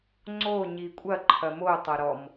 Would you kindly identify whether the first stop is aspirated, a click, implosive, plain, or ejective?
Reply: click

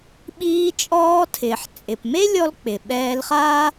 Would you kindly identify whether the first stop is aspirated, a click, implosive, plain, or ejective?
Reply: implosive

